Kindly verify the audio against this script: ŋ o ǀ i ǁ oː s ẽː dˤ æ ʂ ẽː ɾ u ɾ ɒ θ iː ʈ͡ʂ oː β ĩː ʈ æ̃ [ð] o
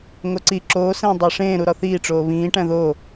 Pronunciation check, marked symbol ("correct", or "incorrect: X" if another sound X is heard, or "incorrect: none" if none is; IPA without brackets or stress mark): correct